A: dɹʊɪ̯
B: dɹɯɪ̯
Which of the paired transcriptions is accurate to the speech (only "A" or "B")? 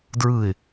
B